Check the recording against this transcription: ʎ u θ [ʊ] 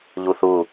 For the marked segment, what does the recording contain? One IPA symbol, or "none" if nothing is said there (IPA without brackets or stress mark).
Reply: u